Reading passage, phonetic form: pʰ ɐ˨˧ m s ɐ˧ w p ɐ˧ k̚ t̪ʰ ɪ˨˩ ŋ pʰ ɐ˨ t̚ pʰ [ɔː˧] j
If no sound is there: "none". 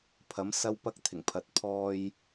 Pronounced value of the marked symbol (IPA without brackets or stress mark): ɔː˧